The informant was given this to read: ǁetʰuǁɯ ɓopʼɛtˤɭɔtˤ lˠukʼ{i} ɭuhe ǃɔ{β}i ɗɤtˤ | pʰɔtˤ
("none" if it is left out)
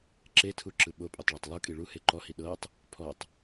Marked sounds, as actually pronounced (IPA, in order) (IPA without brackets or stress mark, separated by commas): i, h